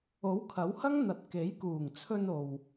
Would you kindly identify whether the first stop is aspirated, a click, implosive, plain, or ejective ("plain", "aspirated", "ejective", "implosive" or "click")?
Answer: aspirated